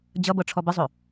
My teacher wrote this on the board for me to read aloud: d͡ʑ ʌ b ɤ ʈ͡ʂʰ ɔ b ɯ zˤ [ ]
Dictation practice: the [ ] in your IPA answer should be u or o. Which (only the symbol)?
o